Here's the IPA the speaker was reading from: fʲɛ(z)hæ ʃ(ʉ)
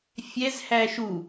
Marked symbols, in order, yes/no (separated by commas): yes, no